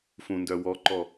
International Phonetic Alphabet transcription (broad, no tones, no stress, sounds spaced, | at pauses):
f ũ n d œ w ɔ ǃ ɔ